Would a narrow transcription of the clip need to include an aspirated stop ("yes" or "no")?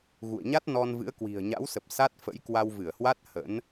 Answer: no